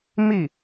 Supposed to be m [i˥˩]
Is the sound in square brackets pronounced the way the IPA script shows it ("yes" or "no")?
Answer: yes